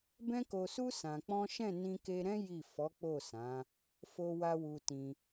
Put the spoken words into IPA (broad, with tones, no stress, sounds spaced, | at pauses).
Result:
b ɛ̃˦ k o˧ s u˦ s ã˧ k͡p ɔ̃˦ ʃ ɛ̃˦˨ n ĩ˧ k e˧ ɾ ɛ̃˦ j i˦˨ f ɔ˨˦ k͡p o˦˨ s ã˨˦ | f o˧ w a˧ w u˧ t ĩ˧